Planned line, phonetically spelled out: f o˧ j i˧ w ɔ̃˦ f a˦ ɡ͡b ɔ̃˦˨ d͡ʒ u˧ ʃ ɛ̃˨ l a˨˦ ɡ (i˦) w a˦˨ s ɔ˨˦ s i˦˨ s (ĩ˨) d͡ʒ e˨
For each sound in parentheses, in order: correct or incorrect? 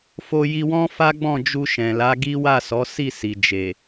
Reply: correct, incorrect

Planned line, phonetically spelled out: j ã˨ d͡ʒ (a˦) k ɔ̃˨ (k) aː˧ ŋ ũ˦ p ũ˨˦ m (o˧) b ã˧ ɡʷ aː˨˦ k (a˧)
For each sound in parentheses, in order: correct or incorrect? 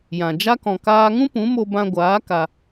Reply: correct, correct, correct, correct

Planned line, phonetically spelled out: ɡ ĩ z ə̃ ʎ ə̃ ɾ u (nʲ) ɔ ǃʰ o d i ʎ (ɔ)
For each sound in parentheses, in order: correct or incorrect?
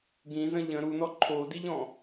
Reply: incorrect, incorrect

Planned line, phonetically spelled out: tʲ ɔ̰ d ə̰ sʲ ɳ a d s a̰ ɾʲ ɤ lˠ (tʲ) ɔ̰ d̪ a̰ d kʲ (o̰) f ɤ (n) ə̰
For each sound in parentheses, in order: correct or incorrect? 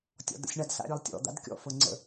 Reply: correct, incorrect, incorrect

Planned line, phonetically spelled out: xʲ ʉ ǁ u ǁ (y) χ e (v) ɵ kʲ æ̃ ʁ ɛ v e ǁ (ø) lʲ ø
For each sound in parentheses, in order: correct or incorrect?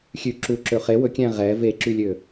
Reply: incorrect, incorrect, incorrect

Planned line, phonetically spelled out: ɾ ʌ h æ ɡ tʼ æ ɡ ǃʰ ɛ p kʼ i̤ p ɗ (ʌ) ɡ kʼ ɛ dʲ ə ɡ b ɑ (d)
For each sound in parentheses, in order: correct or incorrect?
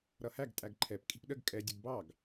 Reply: incorrect, incorrect

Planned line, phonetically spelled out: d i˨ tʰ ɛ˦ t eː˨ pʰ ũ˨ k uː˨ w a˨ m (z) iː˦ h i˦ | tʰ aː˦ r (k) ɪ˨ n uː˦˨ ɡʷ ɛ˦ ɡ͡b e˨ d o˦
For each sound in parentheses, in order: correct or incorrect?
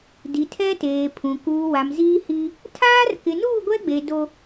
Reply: correct, correct

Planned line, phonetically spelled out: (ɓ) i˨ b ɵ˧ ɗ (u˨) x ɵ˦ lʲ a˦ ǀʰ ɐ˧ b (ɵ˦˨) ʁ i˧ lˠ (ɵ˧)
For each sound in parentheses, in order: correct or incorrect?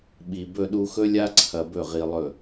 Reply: correct, incorrect, correct, incorrect

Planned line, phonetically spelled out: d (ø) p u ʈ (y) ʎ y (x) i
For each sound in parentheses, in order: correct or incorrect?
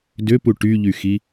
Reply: correct, correct, correct

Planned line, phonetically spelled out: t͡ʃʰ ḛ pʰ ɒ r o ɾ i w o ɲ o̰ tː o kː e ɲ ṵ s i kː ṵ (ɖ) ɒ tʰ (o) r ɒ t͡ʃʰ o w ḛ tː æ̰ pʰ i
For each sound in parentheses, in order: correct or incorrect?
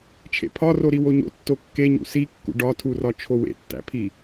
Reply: correct, incorrect

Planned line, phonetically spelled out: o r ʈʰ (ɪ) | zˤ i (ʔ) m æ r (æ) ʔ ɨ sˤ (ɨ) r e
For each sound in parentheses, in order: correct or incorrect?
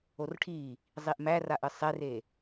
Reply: incorrect, correct, incorrect, incorrect

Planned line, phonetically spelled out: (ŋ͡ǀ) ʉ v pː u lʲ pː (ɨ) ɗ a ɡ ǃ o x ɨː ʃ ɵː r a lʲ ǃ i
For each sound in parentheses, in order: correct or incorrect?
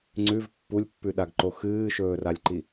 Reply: correct, incorrect

